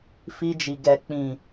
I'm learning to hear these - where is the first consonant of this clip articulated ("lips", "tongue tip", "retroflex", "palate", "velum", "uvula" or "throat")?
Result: lips